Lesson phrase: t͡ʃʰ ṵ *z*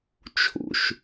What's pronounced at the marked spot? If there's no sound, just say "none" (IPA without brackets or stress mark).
ʃ